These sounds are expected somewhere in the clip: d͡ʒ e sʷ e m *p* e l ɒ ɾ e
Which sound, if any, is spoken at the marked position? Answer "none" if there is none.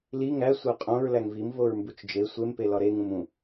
p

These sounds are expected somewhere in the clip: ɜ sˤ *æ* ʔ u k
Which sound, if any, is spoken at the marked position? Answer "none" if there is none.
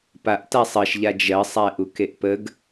æ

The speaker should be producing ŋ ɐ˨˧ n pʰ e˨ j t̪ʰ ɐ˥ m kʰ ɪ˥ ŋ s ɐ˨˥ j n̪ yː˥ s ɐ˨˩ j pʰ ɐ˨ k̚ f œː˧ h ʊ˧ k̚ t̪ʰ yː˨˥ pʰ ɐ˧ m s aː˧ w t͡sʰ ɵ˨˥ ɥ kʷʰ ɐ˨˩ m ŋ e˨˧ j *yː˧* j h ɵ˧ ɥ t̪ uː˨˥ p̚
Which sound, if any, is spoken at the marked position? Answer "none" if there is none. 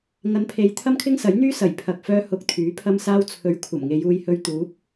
uː˧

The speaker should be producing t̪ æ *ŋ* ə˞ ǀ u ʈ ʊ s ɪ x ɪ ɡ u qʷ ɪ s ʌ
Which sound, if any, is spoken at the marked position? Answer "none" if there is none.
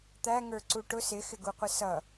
ŋ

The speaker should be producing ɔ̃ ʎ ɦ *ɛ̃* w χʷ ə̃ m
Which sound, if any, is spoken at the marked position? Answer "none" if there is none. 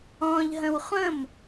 ə̃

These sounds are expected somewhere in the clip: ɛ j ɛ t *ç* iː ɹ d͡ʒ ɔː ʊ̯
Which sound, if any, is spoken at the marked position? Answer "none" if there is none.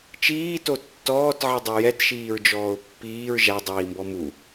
ʃ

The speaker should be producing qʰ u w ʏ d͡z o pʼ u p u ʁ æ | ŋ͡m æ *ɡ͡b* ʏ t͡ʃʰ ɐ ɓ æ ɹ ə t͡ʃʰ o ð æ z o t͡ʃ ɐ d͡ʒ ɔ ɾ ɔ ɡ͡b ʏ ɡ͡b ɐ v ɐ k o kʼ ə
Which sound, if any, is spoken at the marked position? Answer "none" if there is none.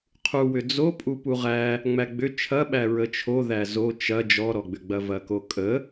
ɡ͡b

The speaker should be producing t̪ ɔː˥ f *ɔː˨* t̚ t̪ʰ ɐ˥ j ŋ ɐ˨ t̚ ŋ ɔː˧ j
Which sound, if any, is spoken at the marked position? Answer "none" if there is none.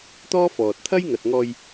ɔː˨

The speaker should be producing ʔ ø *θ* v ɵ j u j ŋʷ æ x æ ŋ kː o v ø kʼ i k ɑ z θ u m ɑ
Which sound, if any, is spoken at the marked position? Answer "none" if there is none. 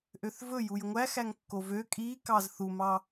θ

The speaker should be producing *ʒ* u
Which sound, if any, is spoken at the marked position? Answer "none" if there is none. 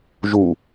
ʒ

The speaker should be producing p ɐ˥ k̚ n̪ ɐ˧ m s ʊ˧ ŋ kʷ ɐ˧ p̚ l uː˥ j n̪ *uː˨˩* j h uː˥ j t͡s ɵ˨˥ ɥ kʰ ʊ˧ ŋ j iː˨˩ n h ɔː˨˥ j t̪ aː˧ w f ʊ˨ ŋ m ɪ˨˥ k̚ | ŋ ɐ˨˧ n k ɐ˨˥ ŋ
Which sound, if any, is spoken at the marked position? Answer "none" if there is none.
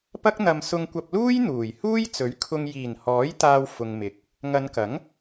uː˨˩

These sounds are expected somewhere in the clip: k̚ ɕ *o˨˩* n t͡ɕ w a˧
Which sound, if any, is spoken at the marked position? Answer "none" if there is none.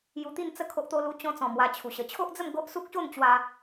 o˥˧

